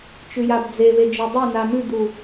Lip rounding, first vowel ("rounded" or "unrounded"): rounded